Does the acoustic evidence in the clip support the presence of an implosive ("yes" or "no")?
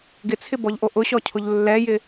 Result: no